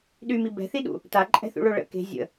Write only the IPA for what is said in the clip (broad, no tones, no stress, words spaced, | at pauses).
ɗymi bɛ̤θiɗṵ | taǃʼɛ̤θṵɭo ɭə̰ ke̤ zʲə̰